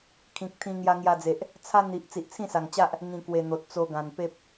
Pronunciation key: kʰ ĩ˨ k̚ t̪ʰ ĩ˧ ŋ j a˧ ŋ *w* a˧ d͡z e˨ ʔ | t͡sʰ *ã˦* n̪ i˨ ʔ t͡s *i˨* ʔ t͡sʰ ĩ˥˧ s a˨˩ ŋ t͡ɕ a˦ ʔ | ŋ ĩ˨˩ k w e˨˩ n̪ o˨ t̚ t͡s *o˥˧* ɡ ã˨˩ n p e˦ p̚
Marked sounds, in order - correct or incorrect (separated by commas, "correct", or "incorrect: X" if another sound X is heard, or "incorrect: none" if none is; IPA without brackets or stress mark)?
incorrect: j, incorrect: a˦, correct, incorrect: o˧